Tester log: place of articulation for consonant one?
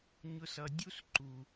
palatal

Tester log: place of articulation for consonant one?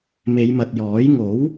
labial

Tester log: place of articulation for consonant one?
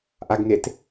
glottal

